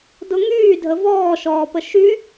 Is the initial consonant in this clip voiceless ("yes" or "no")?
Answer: no